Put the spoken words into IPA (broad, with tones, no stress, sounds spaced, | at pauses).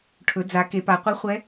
ʈʰ ɵ˩˧ d͡z a˩˧ k e˩˧ p a˩˧ qʷ i˧˥ χʷ ɛ˧˥